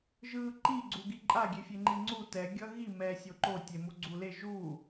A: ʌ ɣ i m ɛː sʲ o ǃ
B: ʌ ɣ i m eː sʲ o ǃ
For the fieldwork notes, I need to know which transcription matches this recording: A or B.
A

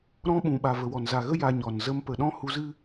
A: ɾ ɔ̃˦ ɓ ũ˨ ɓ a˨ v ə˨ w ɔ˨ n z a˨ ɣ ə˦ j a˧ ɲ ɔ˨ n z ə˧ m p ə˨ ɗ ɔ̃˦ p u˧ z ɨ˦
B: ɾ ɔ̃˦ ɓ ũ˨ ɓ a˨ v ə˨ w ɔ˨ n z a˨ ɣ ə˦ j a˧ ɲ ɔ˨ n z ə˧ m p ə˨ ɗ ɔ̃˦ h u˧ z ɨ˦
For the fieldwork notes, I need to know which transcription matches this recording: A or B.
B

